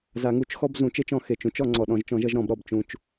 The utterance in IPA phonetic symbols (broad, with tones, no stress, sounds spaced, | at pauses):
z a˨˩˦ ŋ u˨˩˦ t͡ʃ x ɔ˥˧ b z ũ˨˩˦ t͡ʃ e˥˧ t͡ʃ ɔ̃˨˩˦ x e˨˩ t͡ʃ ũ˥˧ t͡ʃ ɔ˨˩˦ ŋ͡ǀ ɔ˨˩ ɗ ɔ̃˨˩˦ ʒ t͡ʃ ɔ̃˨˩˦ ʒ ʌ˥˧ ʒ ɾ ɔ̃˨˩˦ b ɾ ɔ˨˩ b t͡ʃ ũ˨˩ t͡ʃ